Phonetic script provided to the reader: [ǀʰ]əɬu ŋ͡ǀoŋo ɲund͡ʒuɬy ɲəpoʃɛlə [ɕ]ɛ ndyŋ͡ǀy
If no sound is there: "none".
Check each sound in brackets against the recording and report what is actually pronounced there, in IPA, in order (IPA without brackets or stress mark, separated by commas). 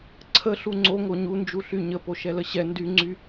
ǀʰ, ɕ